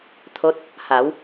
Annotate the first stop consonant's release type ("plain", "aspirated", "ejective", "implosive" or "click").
aspirated